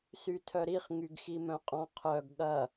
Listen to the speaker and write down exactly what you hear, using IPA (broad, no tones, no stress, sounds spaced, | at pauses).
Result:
s y tʰ œ ɾ i χ ŋ y ɡ x i m œ̃ qʼ ɔ̃ qʰ œ ɡ ɠ ɐ